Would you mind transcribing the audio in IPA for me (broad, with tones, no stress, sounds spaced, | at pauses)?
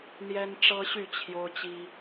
n̪ j ɛ˦ n ʈ͡ʂ ɤ˦ ɕ y˥˨ t͡ɕʰ j o˦ ʊ̯ t͡ɕ i˦